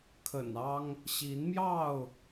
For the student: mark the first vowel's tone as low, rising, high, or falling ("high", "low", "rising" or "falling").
low